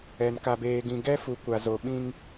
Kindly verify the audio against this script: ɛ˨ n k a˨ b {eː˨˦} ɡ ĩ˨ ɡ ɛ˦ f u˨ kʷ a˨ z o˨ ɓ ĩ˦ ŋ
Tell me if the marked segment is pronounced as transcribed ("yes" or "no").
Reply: no